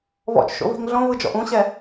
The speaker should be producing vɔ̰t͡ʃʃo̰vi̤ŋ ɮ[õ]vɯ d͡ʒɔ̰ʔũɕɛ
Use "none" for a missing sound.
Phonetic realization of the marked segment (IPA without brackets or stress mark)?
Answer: õ